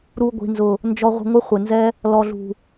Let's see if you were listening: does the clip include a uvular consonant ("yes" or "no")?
yes